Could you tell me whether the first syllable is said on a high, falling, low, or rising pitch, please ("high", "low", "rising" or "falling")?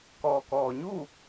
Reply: low